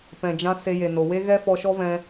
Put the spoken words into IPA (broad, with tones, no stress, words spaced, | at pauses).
pɛ̃˨d͡ʒã˧ se˧je˨no˨ we˦ ɣɛ˦fɔ˧ʃɔ˦vɛ̃˧